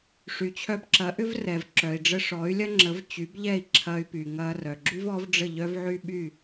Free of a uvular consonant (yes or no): yes